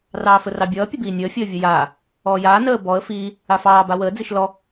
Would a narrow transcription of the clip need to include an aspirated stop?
no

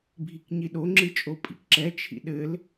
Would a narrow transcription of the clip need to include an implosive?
yes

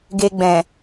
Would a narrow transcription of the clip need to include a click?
no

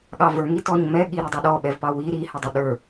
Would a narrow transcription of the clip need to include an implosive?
yes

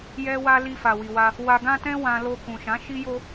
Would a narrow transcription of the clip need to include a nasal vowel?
yes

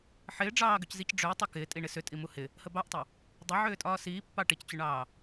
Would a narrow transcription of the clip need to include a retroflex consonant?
yes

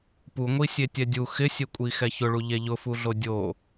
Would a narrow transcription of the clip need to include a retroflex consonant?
yes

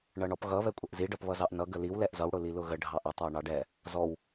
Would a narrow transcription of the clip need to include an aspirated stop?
no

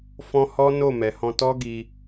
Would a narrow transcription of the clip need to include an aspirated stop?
no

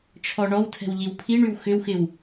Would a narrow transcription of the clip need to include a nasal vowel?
no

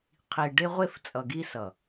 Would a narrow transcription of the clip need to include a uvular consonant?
yes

